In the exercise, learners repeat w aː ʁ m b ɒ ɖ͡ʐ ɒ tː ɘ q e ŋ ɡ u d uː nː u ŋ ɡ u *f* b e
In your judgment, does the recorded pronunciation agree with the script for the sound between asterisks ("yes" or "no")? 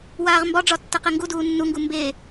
no